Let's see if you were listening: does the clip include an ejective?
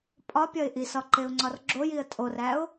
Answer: yes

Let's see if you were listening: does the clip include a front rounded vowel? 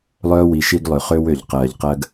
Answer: yes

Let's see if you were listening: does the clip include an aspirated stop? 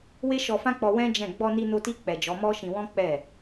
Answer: no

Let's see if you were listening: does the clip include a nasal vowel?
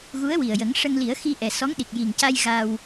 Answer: no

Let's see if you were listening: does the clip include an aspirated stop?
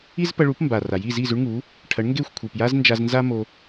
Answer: yes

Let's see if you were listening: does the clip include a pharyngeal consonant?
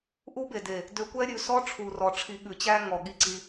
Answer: no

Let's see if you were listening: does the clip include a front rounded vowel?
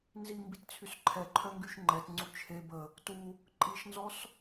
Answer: yes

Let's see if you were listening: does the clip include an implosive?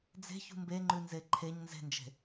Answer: no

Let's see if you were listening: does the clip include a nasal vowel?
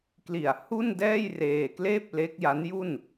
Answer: no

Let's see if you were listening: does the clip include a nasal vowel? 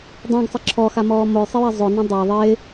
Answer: yes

